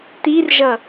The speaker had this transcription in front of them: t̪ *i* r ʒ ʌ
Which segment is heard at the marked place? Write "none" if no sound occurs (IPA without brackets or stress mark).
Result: i